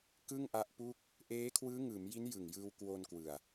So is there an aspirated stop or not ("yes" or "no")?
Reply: yes